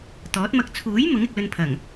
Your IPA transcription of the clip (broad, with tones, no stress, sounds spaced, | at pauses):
t̪ ɔː˨˥ t̚ m ɐ˧ k̚ t͡sʰ uː˨˥ j m ʊ˨˥ ŋ ɪ˨ k̚ l ɵ˧ n pʰ ɐ˨˩ ŋ